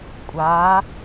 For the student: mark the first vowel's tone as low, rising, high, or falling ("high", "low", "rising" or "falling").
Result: rising